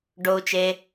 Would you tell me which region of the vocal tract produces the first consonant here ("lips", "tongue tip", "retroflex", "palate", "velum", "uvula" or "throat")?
retroflex